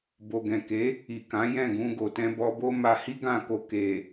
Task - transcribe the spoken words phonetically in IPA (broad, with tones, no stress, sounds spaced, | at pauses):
b o˨ ɡ ɛ̃˨ k e˨˦ | i˨ k ã˨˦ j ɛ̃˦˨ ɡ ũ˧ ɡ o˨ t ɛ̃˧ b ɔ˧ b o˦ m a˧ h i˦ ɡ ã˦˨ k o˧ k e˨